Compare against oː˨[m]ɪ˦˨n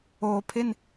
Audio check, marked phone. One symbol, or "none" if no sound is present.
pʰ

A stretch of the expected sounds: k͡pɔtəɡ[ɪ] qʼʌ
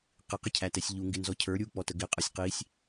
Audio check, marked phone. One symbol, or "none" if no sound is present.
ɪ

